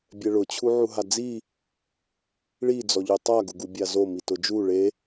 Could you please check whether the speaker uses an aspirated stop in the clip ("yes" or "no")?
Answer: yes